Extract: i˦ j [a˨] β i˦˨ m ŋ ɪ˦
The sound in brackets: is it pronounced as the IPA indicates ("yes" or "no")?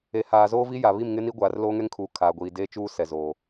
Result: yes